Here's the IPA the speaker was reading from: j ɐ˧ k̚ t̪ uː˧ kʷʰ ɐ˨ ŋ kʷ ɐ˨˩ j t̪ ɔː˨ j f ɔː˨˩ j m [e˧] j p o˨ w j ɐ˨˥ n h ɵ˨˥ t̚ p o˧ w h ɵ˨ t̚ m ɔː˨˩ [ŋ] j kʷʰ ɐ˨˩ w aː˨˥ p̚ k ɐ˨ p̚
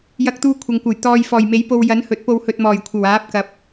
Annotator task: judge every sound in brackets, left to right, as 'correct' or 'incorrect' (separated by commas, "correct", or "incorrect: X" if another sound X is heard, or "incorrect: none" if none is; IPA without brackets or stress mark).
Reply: incorrect: e˨˥, incorrect: none